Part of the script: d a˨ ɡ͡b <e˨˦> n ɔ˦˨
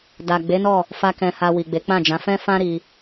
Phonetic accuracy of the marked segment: correct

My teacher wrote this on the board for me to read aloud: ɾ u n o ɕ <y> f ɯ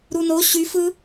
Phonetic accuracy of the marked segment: correct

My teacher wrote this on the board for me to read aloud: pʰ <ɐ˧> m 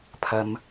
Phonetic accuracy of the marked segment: correct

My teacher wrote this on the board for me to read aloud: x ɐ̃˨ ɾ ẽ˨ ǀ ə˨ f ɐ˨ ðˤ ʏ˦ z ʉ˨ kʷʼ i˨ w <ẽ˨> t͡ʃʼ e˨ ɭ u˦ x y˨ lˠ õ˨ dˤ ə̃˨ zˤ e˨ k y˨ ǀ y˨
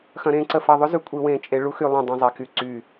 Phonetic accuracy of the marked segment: correct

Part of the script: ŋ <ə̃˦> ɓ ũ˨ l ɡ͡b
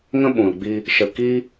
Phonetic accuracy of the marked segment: correct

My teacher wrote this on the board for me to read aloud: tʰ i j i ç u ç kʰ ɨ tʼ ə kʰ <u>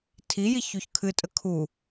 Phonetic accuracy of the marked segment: correct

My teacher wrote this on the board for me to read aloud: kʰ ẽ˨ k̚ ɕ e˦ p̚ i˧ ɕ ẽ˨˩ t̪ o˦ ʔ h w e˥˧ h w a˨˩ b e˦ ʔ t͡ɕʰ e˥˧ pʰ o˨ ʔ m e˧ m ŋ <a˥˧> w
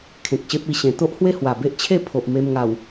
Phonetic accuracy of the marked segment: incorrect: a˨˩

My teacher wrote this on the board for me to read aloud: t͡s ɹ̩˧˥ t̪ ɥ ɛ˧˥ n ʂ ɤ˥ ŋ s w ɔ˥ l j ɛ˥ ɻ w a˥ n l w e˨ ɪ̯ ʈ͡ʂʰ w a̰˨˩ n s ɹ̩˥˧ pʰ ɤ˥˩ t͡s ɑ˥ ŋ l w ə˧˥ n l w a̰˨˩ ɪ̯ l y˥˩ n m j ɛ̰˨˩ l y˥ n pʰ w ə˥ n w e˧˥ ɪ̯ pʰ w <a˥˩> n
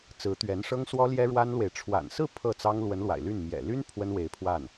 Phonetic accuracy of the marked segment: correct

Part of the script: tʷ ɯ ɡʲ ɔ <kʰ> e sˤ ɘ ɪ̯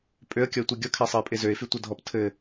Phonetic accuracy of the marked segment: correct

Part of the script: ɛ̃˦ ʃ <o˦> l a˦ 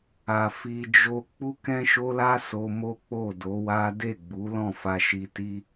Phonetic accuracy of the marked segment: correct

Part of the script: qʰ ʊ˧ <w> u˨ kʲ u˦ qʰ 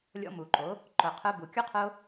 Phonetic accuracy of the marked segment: incorrect: b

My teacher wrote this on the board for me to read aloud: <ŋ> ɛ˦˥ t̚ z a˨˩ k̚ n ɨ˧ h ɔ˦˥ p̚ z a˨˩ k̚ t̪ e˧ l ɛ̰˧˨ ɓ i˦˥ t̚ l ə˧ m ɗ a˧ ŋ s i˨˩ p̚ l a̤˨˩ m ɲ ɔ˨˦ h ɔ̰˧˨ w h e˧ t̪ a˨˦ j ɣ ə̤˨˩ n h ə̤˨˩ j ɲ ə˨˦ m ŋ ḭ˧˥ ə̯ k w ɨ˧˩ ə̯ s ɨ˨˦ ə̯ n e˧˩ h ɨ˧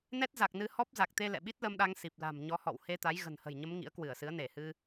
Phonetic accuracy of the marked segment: incorrect: n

